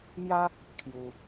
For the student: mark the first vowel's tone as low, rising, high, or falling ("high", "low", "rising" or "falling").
high